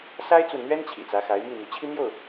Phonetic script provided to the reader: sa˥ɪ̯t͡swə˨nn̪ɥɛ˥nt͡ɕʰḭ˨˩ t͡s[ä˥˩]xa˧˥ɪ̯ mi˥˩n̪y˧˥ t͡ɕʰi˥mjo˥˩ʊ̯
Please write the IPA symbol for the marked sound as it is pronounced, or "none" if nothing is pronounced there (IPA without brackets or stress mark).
ä˧˥